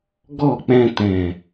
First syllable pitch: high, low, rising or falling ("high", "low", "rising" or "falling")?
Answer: falling